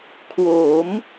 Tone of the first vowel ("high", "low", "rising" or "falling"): rising